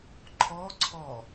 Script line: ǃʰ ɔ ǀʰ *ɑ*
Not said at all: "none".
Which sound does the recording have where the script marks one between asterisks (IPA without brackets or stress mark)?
ɔ